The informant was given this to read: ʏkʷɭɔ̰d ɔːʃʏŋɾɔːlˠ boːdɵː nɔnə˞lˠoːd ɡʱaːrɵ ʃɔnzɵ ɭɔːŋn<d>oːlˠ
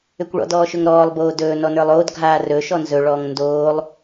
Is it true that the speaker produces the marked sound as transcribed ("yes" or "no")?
yes